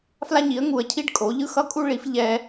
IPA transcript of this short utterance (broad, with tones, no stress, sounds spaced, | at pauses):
f l a˦ ɲ i˩˥ ə̯ ŋ u˩˥ ə̯ cʰ i˦ ɖ kʼ o˩˥ ʎ ɯ˦ x ʌ˦ kʼ u˦ ɭ i˩˥ f ʎ ɛ˦